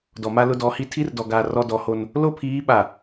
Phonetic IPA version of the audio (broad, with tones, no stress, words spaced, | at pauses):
dɔ˨ma˦ lʊ˦dɔ˨˦hi˦ tʰi˦rdɔ˨ɡaː˨ rɔ˦ dɔ˨˦ho˦n | lo˦pʰiː˨˦ ɓa˨